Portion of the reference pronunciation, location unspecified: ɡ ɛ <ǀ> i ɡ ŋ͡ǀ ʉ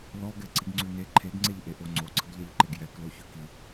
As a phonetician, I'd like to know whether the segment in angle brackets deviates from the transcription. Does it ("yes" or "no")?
no